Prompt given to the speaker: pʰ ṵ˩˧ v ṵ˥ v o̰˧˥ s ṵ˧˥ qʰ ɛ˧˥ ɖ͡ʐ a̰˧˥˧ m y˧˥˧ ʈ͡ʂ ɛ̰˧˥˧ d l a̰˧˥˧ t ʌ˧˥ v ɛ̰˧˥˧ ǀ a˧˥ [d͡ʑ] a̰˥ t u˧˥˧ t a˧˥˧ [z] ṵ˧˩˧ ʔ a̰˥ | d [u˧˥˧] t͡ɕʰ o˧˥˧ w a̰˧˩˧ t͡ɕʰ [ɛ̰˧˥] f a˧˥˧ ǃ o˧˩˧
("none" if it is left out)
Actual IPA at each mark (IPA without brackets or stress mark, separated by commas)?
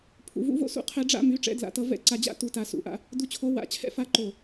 d͡ʑ, s, u˧˥, ɛ̰˧˥